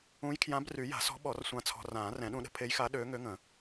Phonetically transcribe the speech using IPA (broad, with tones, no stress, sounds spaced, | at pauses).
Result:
ũ˧˥ j kʰ j ã˧˥ b r y˨˩˦ j a̤˨˩˦ s ɔ̤˧˥ ɓ ɔ˨˩˦ r sʷ ã˧ t͡sʰ ɔ̤˧ r ãː˨˩˦ r ɛ̃˨˩˦ ɗ ũ˧ ɗ ə̤˧ pʰ e˧˥ j x a˧˥ ɗ øː˧˥ ŋ ø˧˥ ŋ ə̃˨˩˦